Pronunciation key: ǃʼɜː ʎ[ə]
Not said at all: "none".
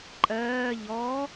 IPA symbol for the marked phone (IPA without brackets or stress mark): ɔ